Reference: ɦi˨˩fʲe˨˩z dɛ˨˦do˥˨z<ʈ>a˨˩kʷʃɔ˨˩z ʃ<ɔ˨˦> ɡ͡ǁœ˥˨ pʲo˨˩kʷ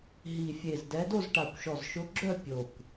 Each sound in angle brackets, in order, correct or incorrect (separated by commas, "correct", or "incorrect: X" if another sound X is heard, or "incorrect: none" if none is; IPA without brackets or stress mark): correct, incorrect: ʊ˨˦